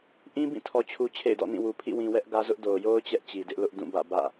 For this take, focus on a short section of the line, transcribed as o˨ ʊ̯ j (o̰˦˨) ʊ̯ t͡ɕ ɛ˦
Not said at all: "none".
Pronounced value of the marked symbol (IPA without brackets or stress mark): o˦